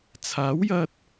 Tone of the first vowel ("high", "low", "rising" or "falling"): rising